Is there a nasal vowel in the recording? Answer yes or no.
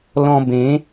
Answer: yes